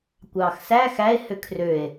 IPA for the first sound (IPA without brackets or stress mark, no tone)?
kʷ